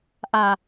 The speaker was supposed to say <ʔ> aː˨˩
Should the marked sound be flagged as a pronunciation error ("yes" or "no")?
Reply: no